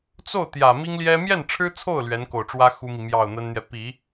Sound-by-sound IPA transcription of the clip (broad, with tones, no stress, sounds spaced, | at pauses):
t͡s o˥˩ ʊ̯ t̪ j ä˨˩ m i˥ ŋ l j ɛ˥ m j ɛ˥˩ n ʈ͡ʂʰ ɻ̩˥ t͡sʰ o˥˩ ʊ̯ l ɥ ɛ˧˥ n k o˨˩ ʊ̯ ʈ͡ʂ w ä˥ x u˥ m i˨ m j ɑ˥˩ ʊ̯ n̪ ə˥ n n̪ j ɛ˨ p i˨˩˦